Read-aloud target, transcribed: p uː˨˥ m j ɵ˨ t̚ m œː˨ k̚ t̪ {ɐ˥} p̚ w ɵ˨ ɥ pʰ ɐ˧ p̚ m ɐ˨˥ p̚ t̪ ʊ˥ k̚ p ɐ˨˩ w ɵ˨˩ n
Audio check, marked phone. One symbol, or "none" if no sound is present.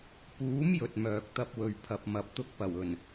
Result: ɐ˥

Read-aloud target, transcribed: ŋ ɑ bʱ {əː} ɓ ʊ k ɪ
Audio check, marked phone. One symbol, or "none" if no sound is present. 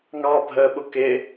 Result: əː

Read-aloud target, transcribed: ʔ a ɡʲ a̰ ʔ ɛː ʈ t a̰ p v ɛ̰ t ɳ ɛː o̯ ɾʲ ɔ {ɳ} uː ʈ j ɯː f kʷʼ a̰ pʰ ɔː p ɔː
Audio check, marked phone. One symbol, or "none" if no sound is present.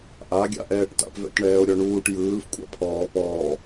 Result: ɳ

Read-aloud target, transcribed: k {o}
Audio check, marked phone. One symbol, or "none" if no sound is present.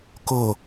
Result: o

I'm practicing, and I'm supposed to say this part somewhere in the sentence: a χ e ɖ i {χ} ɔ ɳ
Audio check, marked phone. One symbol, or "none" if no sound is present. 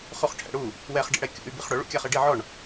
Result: ʕ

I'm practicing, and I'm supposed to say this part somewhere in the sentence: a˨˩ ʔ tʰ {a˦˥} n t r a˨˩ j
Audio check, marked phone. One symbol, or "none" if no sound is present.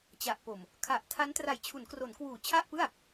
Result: a˦˥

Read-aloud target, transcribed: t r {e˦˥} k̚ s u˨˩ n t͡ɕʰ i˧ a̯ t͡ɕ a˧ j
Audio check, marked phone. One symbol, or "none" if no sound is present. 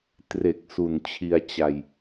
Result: e˨˩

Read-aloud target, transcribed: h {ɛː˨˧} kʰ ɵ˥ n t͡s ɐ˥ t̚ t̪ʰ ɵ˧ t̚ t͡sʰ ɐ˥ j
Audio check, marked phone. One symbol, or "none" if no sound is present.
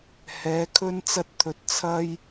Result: ɛː˨˧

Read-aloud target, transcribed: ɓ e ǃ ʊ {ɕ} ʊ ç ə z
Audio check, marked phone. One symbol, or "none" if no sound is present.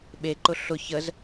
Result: ɬ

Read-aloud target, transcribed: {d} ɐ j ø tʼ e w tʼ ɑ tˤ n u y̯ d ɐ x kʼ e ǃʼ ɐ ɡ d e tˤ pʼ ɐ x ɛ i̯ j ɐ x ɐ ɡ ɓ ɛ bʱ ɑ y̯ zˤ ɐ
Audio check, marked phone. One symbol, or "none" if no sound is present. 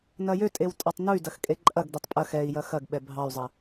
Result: n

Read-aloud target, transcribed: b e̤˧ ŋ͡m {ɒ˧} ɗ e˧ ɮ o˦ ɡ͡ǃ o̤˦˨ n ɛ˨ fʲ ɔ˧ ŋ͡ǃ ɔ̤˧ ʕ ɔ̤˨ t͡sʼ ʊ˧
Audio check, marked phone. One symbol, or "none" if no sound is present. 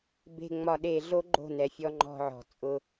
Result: ɒ˧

